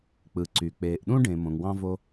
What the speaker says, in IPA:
k͡p ɯ˩ ǀ y˩ k͡p eː˩ ʔ ɗ ũ˥ ɖ ẽ˩ m õ˩ ŋ w ɑ̃˧ v o˧

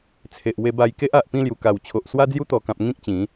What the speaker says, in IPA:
t͡sʰ e˨ ʔ w e˧ b a˧ j k e˦ ʔ a˨ ʔ p ĩ˥˧ l j u˨˩ k a˨˩ w t͡ɕʰ o˨ ʔ s w a˧ d͡z j u˧ t̪ ɔ˨˩ k ã˨ p̚ ŋ ĩ˦ k̚ t͡ɕ ĩ˨˦

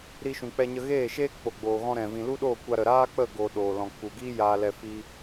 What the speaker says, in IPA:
ɾ i˧ ʃ ũ˨ k͡p ɛ˧ ɲ ə˧ ɣ eː˦˨ ʃ eː˦ k͡p o˨ ɡ͡b oː˨ ɣ ɔ̃˧ ɾ ɛ̃˨ v ĩ˨ l u˦ ɗ oː˦˨ kʷ a˧ ɾ ə˨ ɾ aː˦ k͡p ə˦˨ ɡ o˨ ɗ oː˨ l ɔ̃˨ k͡p u˨ ɡ iː˦ j aː˧ l ɛ˧ f i˦

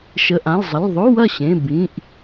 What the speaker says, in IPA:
ʃ ə˩˧˩ ʔ ã˩˧˩ l zˤ ə˩˧˩ l ðˤ o˧˥˧ w ɐ˥˩ ɕ ẽ˩˧˩ b ĩ˩˧˩ ʔ

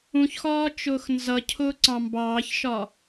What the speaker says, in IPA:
ũ ç x ɒː t͡ʃ ʊː x n z ʌ cʰ ʊː ǀ ɑ̃ m b ɑː ç ʃ ɒ

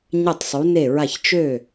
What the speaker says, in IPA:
ɲ ɘ˧˩ tˤ sˤ u˩˧ n e˧˩ ɹ a˧˩ ç t͡ʃ ø˧˩

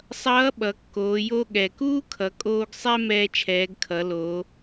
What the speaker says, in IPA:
sˤ ʌː˧˥ ɓ ʌ˩˧ kː oː˩˧ j o˧ ɠ ɛ˩ k uː˥ kʰ ʌ˩˧ kʼ oː˧ ɡ sˤ ɛ˥ m ɛː˧ t͡ʃʰ ɛː˩˧ ɡ kʰ ʌ˩˧ l oː˩˧

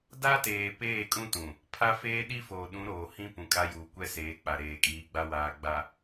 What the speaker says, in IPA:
d a˦ t eː˨ p eː˦˨ kʼ ũ˦ t ũ˨ | pʰ a˦ f eː˦ ɗ i˦ f oː˨ ɗ ũ˨˦ ɾ oː˨ h ĩ˦ p ũ˨ kʼ a˦ j uː˨ kʷ ɛ˦ s eː˨˦ k͡p a˨ ɾ eː˨ kʼ iː˨˦ ɡ͡b a˦ w aː˨ ɡ͡b a˨

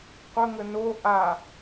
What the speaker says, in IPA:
qʷ ə ŋ ə n o ʔ a

